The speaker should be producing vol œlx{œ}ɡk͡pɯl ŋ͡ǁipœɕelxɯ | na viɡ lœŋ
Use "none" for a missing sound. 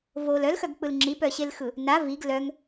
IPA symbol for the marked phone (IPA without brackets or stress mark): œ